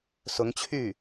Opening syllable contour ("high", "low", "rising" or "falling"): rising